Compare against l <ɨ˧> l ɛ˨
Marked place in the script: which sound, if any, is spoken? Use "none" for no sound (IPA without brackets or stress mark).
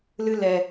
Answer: ɨ˧